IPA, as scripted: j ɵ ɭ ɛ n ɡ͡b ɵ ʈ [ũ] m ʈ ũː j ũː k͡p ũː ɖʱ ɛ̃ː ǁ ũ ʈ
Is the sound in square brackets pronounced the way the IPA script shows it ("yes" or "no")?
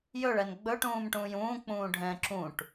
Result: no